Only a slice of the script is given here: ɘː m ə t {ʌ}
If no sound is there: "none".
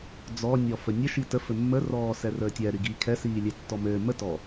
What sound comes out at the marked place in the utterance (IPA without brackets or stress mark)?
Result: ɔ